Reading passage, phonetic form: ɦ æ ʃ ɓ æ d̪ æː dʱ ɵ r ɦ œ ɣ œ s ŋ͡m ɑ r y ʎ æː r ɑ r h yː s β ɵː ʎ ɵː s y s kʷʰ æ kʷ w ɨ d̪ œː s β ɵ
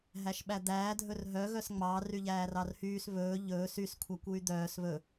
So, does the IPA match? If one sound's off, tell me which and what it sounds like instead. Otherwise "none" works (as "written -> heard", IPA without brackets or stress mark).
ɨ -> y